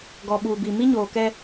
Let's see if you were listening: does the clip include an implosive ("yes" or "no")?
yes